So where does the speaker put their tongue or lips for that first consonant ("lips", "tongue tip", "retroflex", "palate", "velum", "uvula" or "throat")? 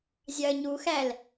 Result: tongue tip